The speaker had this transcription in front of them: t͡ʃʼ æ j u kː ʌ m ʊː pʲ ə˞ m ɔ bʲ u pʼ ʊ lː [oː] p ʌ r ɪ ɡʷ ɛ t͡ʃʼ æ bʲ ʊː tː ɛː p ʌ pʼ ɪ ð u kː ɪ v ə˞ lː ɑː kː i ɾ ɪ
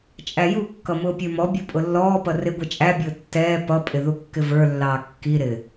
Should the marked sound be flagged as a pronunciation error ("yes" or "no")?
yes